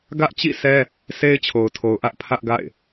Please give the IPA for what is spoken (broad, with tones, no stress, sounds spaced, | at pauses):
ɡ ä˦ ʔ t͡ɕ ḭ˦˨ sʰ ɛ˦ | sʰ e˦ ɪ̯ t͡ɕʰ o˨ ʊ̯ tʰ o˨ ʊ̯ ʔ ä˦ ʔ pʰ ä˦ ʔ ɡ a̰˦˨ ɪ̯